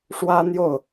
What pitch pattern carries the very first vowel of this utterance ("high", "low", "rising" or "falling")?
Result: high